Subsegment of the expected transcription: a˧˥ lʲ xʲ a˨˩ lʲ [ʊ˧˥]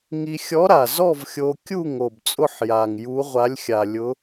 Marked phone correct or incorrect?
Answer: correct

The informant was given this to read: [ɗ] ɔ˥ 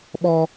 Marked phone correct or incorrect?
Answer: incorrect: ɓ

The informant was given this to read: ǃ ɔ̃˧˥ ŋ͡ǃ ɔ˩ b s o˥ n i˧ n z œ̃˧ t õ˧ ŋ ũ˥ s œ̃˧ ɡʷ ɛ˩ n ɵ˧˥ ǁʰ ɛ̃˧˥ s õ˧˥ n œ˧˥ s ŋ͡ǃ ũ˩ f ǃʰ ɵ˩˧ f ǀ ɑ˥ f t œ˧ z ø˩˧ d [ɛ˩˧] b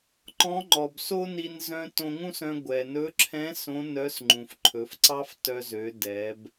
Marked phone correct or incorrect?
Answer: correct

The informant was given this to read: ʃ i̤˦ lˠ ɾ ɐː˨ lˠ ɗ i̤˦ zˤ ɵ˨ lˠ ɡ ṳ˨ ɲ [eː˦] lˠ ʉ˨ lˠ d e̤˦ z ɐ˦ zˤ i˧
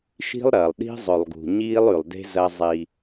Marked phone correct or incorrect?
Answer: incorrect: iː˦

